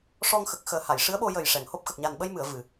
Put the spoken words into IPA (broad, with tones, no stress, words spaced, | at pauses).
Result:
ʂɔ˧ŋxə˨˩k̚xəː˨˩ ha˨˩˨jʂɨ˧˥ə̯ɓo˧ jə˨˩j ʂɛ˨˩˨ŋho˦˥p̚ xə˨˩k̚ɲa˨˩nɓə˧jmɨ˨˩˨ə̯ vɨ˨˩˨